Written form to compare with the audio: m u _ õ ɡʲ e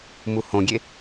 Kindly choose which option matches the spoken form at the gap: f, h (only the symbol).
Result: h